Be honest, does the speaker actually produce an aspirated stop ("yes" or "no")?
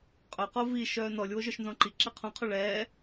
yes